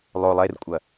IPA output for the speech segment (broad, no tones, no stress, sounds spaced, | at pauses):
lˠ o lˠ e r kʷʼ ɐ